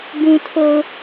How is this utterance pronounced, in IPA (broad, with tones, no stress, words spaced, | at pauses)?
bũ˨tʰo˨ʊ̯